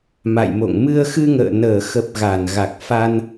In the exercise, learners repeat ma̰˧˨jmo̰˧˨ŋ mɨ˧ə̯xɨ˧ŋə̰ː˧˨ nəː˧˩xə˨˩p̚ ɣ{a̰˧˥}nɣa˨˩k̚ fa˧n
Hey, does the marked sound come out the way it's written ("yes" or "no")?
no